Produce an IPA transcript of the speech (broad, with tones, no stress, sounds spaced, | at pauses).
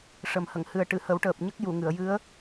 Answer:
ʂ ə˨˩ m h ə˨˩˨ ŋ h ɨ˨˩ ə̯ ʈ ɨ˨˩˨ h ə˨˩˦ w ʈ əː˨˩ p̚ ɲ ə˦˥ k̚ j u˨˩˨ ŋ ɨ˨˩˨ ə̯ j ɨ˧˥ ə̯